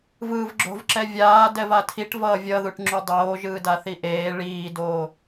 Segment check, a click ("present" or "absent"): present